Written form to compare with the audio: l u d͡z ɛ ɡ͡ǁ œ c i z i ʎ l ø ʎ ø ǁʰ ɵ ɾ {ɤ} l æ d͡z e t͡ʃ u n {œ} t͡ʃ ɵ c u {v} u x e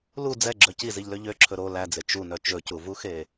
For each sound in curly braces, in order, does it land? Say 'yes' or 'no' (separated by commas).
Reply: no, yes, yes